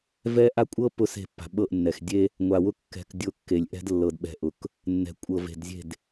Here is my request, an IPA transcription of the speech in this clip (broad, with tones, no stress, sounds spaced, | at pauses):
v ɛ˦ ʔ a˦ kʷʼ ɤ˦ p ʊ˦˨ s e̤˦˨ pː a̤˨ ɓ ɤ˦˨ ʔ nː ɛ˨ x dʲ e˦ | ŋʷ a˨ w ʊ˦ kː ɛ̤˨ k dʲ ʊ˦˨ kː e˨ lʲ ʔ ɛ̤˦ d lː ɤ˨ d ɓ ɛ̤˨ ʔ ʊ˨ k | nː ɛ̤˨ kʷʼ ɤ˨ v e̤˨ d zʲ e̤˦˨ d